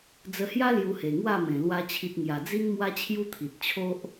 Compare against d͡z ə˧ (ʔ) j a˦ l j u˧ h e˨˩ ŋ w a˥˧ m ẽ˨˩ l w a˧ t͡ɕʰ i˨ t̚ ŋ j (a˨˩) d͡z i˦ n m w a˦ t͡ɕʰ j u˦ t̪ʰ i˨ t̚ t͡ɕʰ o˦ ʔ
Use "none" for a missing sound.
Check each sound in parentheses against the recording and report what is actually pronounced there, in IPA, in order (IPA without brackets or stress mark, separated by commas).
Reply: h, a˨˩